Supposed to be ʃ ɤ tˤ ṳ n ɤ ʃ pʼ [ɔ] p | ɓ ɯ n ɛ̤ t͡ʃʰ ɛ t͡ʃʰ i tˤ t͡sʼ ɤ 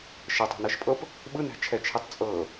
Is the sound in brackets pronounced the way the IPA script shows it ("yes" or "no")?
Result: no